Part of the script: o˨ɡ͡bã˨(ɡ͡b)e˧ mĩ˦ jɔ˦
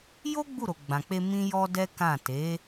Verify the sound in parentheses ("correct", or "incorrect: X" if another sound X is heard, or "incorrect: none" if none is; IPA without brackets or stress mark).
incorrect: k͡p